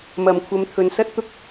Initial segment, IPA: m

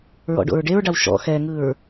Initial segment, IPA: ɹ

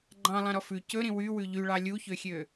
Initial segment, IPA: ɡ͡ǃ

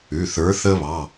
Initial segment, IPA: ʉ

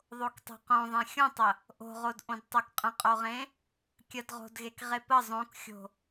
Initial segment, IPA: ðˤ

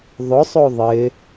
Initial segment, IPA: ðˤ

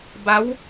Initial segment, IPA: b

